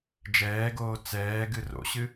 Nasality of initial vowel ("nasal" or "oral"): oral